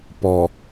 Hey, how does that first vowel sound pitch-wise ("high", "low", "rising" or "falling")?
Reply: low